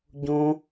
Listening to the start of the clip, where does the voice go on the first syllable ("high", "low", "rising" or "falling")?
high